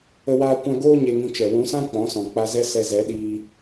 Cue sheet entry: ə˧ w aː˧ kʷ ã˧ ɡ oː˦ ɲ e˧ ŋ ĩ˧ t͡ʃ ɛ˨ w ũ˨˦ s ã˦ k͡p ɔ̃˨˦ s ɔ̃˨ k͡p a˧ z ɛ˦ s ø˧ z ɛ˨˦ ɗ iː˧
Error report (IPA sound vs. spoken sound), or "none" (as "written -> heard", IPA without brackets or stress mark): ø˧ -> ɛ˧